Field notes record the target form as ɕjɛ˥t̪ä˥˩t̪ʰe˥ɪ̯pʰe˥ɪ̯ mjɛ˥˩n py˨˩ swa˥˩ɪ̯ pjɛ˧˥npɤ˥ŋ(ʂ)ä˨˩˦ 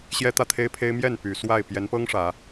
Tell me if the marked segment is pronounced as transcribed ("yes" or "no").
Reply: yes